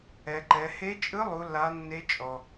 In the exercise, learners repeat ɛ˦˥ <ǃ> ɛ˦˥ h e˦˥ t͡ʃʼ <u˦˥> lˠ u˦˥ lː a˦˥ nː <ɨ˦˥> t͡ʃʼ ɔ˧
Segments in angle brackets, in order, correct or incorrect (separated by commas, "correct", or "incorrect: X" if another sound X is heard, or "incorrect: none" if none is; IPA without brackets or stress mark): correct, incorrect: ɯ˦˥, incorrect: e˦˥